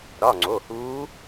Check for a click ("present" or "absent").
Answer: present